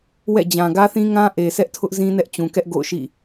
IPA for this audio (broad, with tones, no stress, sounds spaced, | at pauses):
w ɛ̰˦˨ d͡ʑ ã˨ ɡ ä˦ θ ĩ˦ ŋ ã˦ ʔ e˨ sʰ ɛ˦ ʔ tʰ ʊ˦ ʔ z ĩ˦ n ɛ˦ ʔ t͡ɕ ũ˨ k ɛ˦ ʔ ɡ o̰˦˨ ʊ̯ ʃ ḭ˦˨